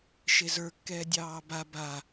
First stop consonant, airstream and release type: plain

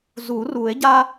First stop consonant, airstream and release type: plain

